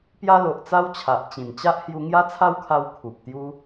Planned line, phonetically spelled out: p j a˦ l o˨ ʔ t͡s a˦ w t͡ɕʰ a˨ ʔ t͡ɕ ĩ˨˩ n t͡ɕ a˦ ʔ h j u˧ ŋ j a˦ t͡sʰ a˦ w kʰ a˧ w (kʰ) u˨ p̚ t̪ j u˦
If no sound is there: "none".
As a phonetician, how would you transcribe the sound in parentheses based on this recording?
kʰ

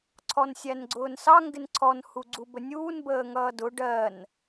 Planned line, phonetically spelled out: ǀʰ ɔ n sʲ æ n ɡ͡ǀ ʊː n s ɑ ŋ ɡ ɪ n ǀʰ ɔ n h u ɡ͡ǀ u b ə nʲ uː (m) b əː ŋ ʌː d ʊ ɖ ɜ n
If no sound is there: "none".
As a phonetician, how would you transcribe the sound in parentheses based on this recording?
n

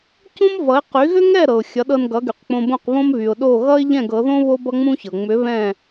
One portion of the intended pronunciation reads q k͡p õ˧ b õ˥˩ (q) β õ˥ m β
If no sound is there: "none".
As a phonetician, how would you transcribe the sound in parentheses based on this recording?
q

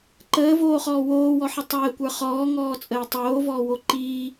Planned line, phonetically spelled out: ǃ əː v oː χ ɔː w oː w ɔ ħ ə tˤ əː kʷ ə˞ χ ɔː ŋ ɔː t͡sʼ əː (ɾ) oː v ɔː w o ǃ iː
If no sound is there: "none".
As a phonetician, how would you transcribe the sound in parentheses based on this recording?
tˤ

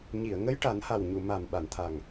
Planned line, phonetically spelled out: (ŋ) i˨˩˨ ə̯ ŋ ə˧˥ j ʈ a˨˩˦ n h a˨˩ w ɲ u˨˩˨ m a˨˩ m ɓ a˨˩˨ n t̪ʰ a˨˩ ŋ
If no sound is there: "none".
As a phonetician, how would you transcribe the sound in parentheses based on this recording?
ɲ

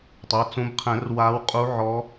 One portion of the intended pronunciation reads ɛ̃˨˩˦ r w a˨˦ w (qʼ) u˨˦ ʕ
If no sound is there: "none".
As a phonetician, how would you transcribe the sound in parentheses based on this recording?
qʼ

